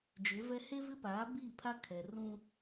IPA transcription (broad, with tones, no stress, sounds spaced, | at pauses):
d͡ʒ ɪ˨˦ v ɛ˦ h e˦ v ɪ˦ p aː˨˦ b iː˦˨ pʰ a˦ kʰ ɛ˨ r ũ˦